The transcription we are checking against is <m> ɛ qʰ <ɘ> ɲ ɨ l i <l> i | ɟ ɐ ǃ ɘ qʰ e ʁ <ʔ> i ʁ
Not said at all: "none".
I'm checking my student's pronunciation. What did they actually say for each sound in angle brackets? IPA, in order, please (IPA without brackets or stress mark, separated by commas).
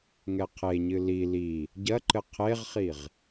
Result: ŋ, e, l, χ